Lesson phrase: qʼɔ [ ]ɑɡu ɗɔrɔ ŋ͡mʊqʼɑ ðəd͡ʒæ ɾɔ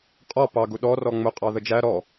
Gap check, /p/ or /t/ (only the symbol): p